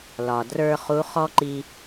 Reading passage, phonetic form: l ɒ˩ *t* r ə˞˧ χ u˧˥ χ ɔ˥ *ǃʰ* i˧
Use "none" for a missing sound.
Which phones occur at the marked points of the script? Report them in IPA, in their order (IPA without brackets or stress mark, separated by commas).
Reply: d, ǃ